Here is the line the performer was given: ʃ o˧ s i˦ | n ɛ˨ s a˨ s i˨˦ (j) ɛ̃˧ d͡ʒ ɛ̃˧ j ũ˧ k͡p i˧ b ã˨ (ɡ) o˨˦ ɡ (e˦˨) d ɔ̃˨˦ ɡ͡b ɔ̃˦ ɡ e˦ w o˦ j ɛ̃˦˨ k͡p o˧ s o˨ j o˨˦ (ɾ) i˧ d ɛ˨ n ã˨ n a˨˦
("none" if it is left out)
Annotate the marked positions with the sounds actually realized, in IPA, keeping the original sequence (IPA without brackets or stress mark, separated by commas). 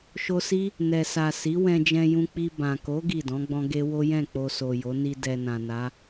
w, k, i˦˨, n